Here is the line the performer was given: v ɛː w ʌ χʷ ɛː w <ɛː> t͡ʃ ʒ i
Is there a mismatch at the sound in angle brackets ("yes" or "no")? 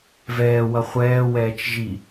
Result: no